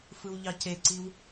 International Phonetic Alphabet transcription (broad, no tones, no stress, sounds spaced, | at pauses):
f ɯ w ʎ ɑ c e ǀ i w